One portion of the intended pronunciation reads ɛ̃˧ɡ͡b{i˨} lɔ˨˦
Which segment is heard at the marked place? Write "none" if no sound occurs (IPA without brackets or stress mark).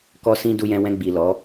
i˨